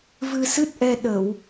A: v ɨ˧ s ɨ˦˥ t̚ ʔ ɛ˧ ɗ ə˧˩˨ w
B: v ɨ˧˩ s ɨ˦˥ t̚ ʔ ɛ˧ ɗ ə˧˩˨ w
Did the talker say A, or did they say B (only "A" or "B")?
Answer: A